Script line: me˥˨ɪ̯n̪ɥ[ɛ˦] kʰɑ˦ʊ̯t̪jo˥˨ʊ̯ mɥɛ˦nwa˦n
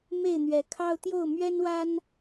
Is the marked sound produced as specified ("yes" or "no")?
no